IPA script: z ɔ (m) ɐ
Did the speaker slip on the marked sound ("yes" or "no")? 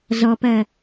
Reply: yes